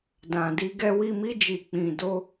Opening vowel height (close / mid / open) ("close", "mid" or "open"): open